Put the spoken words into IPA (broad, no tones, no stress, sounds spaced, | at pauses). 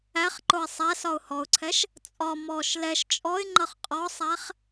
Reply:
æ χ ǃ ʊ ɪ̯ sˤ æ s ɒ ʊ̯ h ɔ ʊ̯ ǀʰ ɛ ʃ | t͡sʼ ɒ m ɔ ʃ l ɛ ʃ t͡ʃʼ ɔ ɪ̯ ŋ͡ǃ ʌ χ qʼ ɔ sˤ æ χ